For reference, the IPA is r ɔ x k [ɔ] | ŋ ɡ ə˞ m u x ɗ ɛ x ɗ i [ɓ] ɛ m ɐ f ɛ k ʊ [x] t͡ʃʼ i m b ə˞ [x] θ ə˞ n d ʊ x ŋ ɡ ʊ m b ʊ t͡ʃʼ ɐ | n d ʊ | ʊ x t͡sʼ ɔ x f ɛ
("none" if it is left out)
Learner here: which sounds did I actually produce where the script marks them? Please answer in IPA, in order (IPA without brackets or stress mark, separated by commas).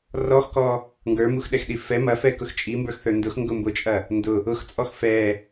ɔ, f, x, x